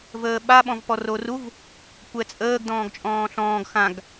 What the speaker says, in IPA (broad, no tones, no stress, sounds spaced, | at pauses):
v əː ɓ a ɓ ɔ̃ v p ɔ r o r u v | kʷ ɛ t͡sʼ əː ɡ d ɔ̃ː ɡ t͡ʃʼ ɔ̃ː ɬ ɔ̃ː ɡ x ã ɡ